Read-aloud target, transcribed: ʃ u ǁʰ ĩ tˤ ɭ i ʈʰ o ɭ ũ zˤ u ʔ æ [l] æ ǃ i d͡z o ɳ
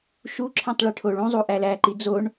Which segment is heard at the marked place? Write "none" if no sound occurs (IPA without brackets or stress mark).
l